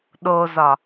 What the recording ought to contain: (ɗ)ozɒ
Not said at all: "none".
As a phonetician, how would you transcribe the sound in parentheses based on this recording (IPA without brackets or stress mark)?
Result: ɗ